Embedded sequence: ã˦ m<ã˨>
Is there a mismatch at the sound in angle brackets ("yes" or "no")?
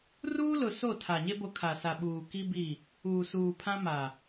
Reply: yes